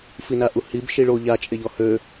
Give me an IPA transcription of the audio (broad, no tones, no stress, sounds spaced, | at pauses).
f i n a ʔ u h i b ʃ i ɭ o ʎ a t͡ʃʼ e ʎ ɔ h ø